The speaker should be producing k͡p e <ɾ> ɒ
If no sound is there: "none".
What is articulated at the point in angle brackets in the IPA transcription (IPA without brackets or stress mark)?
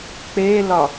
l